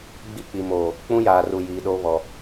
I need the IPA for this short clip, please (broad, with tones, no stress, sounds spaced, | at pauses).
ɡ͡b i˦ k͡p i˨ m oː˨ | k͡p ũ˦ j aː˨ r u˨ j iː˨ ɗ o˦ β ɔ˨